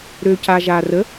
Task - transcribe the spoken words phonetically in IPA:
ɾøcaʒa rə

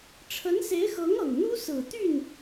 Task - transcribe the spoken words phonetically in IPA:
ʈ͡ʂʰə˧˥nse˧˥ɪ̯xɤ˧˥ŋ ɤ˨˩ŋn̪u˥ sɹ̩˨˩t̪y˥˩n

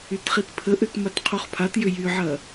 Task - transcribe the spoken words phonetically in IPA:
ytχitpʰəʔøt matqʰuχpʰatjʏ jyʕɐ

